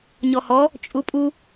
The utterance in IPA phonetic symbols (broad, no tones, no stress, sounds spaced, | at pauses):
ɲ ɔ h ɔ | t͡ʃʼ u pʼ u